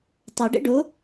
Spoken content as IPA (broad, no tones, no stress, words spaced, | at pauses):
tˤoɖɛ̰ ɖo